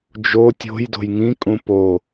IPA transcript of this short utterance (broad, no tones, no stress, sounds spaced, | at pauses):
d͡ʒ o tʲ o̤ j d o̤ j ŋ ĩ kʼ ũ p o